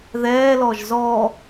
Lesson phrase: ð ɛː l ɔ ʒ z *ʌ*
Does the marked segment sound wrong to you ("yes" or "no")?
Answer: yes